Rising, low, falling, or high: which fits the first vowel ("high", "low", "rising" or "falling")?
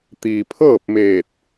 low